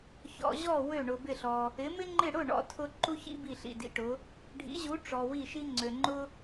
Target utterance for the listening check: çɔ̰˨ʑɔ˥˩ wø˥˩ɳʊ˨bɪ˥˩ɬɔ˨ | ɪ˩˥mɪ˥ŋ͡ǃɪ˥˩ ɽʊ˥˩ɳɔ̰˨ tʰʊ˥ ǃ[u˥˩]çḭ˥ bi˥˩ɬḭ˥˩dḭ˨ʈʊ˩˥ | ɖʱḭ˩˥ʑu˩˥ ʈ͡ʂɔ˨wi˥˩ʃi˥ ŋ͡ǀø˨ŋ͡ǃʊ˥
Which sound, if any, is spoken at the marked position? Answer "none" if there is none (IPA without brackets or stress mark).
u˥